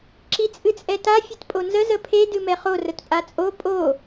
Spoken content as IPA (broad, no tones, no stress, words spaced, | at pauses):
ǁit͡sʼɨt͡sʼɛta fʲɨtpʼonzə zəpʰe dɨmɛχo rətpʼat͡sʼo pʼo